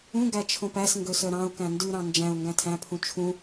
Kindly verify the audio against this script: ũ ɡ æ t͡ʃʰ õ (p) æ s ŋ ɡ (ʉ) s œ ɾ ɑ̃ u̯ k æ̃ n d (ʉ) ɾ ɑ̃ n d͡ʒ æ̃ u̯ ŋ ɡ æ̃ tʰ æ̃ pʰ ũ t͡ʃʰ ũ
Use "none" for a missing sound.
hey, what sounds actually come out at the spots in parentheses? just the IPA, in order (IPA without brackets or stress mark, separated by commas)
p, ø, ʉ